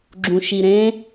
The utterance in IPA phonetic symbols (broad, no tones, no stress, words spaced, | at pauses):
ɡ͡ǁũʃiɾẽ